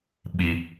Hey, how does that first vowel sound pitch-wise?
high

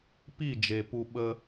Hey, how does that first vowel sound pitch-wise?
falling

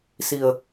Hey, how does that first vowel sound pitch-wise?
low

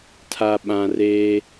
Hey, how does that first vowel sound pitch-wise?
low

